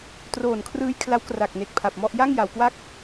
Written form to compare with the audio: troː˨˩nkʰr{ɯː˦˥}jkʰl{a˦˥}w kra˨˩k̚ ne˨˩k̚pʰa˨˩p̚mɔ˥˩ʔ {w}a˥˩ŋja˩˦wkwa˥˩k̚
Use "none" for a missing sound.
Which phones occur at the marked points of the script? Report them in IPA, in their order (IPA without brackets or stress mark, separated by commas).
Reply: ɯː˦˥, a˦˥, j